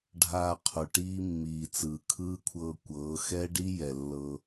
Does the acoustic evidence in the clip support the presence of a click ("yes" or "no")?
no